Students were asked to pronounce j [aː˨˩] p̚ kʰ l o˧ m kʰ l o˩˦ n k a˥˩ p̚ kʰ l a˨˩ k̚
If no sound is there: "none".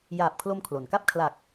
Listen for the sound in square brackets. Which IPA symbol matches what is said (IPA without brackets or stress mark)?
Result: aː˨˩